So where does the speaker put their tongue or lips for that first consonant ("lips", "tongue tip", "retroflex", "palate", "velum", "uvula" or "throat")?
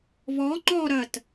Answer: lips